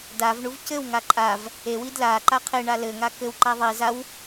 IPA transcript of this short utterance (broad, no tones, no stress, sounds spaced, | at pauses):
d a v ɳ u v c ɘ w ŋ a ǃʼ a v | e w i d l a ǃ a qʰ e ɳ a l ɘ ŋ a k ɘ w ǃ a ðˤ i z a w